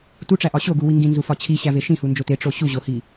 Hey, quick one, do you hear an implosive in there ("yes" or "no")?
no